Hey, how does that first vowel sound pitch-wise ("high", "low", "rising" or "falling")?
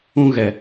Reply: high